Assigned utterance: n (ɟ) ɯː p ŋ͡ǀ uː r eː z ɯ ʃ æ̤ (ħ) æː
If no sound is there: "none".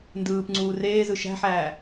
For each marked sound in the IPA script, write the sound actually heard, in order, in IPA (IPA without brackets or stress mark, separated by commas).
d, ħ